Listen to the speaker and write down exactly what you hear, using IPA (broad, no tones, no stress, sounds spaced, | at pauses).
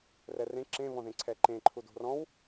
r ɛ r ẽ ǁ ẽ β ɔ̃ ð ẽ ǀʰ ɛ ǃ ẽ ǃʰ u d o̤ r ɔ̃ w